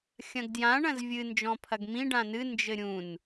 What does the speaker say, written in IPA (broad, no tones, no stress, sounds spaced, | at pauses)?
xʲ ɐ̃ ɡ d j ã ɳ ɐ̃ z vʲ ɨ n d͡ʒ ɔ̃ pʰ ɐ ɡ m ĩ ɖ ã n ɨ n d͡ʒ ɘ ɾʲ ũ n